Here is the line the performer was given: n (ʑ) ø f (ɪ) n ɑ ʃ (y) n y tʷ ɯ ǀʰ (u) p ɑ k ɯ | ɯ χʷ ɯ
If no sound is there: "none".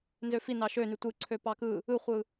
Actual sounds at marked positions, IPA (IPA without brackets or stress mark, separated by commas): z, i, ø, ø